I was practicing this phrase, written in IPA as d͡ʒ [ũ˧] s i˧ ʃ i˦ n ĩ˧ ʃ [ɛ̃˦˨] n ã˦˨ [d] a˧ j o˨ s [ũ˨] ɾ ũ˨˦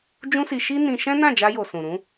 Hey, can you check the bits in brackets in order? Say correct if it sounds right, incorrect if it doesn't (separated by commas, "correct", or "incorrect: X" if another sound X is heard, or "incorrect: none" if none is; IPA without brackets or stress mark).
incorrect: ũ˦, incorrect: ɛ̃˦, incorrect: d͡ʒ, correct